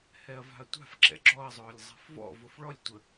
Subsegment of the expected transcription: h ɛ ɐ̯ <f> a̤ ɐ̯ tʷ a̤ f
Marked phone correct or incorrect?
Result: incorrect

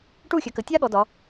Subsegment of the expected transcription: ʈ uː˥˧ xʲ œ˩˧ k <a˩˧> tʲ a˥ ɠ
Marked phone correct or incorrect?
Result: incorrect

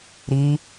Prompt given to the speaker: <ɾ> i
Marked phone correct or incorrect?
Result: correct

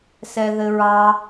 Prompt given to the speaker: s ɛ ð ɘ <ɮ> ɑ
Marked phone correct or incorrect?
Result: incorrect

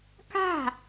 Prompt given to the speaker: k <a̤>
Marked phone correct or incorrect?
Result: correct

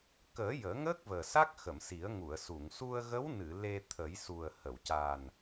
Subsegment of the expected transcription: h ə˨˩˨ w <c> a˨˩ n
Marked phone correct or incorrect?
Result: correct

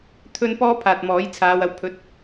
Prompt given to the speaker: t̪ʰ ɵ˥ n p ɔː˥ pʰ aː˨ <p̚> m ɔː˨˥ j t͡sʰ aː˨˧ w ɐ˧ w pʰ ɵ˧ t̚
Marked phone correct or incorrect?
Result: incorrect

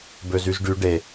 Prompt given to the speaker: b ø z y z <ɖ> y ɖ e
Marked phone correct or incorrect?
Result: correct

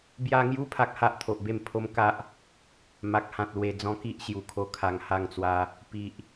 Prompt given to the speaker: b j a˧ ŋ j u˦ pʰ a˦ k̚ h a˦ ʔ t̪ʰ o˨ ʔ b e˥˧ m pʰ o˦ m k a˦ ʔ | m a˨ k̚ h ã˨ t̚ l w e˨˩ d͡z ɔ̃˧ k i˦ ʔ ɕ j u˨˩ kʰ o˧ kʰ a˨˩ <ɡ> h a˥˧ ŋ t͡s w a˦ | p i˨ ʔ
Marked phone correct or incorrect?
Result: incorrect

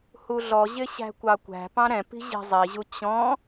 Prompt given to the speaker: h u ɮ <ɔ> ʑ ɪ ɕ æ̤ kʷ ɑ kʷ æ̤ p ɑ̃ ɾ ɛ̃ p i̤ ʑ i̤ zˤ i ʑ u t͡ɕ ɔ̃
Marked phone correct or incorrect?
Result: correct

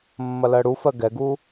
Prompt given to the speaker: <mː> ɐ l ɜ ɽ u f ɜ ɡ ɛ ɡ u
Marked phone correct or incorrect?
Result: correct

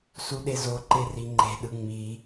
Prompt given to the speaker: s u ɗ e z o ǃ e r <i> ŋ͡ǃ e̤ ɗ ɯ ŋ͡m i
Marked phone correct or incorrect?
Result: correct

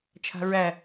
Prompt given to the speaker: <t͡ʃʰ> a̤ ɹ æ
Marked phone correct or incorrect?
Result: correct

